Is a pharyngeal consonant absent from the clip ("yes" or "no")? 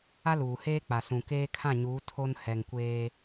yes